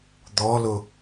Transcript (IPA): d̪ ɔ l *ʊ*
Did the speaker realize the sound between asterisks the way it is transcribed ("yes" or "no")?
yes